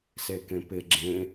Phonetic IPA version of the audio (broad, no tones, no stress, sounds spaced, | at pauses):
s e k ẽ p ɪ ɡ͡ǁ ẽ